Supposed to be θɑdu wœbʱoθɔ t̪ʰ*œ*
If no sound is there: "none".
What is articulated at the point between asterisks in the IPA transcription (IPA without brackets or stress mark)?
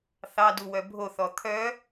œ